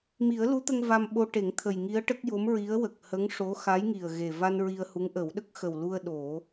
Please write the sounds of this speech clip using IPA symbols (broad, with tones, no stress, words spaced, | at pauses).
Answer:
mi˨˩˦ə̯lu˧˥t̪ə˧ŋ va˧mɓo˧ʈe˨˩˦ŋ t̪ʰə˨˩jŋi˧˥ə̯ʈə˦˥k̚ jo˧˥mɹi˧˥ə̯ wə˨˩k̚hə˧˥ŋʂo˧˥ xa˧˥jŋi˨˩ə̯ɣe˨˩ va˧n ɹi˧ə̯hu˧˥ŋʔə˨˩˦w ɗə˦˥k̚ xə˨˩wlu˧ə̯ ɗo˨˩˦